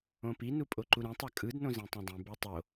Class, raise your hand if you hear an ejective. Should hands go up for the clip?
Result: yes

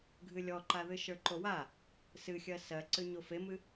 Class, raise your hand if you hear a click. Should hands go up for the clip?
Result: yes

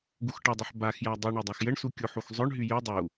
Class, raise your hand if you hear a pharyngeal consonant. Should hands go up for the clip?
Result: yes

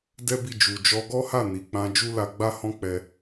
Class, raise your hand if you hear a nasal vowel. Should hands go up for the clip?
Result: yes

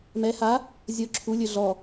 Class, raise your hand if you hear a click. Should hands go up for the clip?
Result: yes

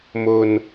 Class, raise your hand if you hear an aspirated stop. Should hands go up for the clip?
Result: no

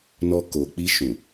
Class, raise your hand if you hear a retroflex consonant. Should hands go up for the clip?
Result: no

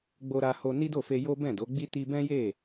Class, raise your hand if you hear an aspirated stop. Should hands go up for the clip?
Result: no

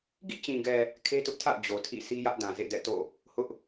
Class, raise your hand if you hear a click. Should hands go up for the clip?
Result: no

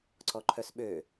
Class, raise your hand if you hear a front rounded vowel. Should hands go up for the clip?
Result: yes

